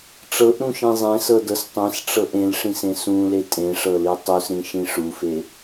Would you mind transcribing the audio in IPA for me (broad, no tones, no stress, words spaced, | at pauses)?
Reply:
ʈ͡ʂɤʔɾũʃĩ zˤẽsɤdɤs tˤẽsʈ͡ʂɤʔ ẽlʂĩsẽ sũle tʼẽʂɤli tˤusɾĩʃĩ ʂufe